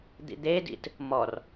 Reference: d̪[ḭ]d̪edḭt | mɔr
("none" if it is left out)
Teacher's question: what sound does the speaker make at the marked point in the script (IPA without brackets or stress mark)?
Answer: ḭ